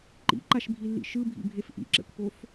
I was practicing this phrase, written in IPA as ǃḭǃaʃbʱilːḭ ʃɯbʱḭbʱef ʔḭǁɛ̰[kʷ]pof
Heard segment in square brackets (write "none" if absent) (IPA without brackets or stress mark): kʷ